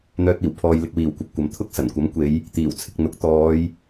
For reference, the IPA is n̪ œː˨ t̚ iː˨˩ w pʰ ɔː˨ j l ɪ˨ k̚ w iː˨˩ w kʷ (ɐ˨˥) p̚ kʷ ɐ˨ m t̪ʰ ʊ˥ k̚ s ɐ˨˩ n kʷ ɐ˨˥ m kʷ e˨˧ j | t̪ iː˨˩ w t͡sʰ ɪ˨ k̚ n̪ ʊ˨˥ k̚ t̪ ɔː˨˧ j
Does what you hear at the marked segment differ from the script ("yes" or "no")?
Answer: yes